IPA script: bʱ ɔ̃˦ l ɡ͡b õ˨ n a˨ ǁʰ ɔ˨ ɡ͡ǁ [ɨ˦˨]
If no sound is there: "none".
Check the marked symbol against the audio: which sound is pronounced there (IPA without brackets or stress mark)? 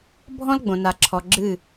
ɨ˦˨